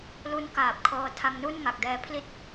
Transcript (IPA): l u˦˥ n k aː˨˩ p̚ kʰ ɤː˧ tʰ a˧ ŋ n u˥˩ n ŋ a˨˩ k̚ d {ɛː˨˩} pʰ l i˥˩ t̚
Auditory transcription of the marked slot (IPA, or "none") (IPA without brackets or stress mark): ɛː˧